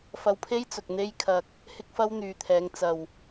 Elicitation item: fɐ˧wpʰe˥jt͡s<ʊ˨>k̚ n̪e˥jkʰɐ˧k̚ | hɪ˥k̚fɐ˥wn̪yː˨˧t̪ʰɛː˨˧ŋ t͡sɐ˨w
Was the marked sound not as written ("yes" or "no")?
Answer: no